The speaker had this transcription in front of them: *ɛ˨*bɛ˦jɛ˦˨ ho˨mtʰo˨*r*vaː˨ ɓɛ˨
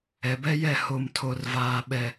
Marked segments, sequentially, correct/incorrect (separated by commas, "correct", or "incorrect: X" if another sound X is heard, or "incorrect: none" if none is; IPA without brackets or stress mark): correct, correct